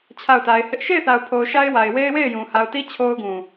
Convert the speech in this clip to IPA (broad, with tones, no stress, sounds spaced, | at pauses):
t͡ɕʰ a˦˨ ʊ̯ t a˨ ɪ̯ h ɪ˦ ʔ ʃ e˦˨ ɪ̯ θ a˨ ʊ̯ pʰ o˨ ʊ̯ ʃ a˦ ɪ̯ w a˨ ɪ̯ w e˦ ɪ̯ w e˦˨ ɪ̯ j ũ˨ h a˨ ʊ̯ t i˦ t͡ɕʰ o˦ ʊ̯ ɡ ũ˨